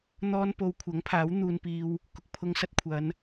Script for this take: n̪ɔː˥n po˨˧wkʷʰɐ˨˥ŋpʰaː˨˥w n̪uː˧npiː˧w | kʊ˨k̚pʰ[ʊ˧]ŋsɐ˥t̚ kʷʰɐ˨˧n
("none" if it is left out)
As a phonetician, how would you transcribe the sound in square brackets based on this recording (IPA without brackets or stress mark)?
ʊ˧